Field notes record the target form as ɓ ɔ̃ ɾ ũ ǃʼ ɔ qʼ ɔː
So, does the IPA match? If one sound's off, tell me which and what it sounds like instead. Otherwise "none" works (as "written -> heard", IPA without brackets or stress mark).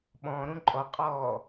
none